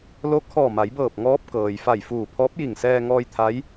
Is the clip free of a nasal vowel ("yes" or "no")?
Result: yes